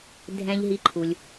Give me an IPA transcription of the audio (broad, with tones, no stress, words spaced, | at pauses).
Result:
dʱɛ̃˨ʎ ɦi˨ǃʰu˩lʲ